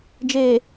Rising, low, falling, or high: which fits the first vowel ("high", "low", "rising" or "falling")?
low